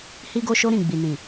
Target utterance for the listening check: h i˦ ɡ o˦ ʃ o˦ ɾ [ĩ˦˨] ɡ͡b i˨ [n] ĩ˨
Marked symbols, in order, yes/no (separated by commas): yes, yes